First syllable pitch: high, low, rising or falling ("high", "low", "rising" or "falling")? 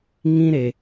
high